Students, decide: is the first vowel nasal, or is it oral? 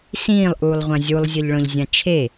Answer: nasal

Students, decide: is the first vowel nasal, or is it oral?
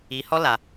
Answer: oral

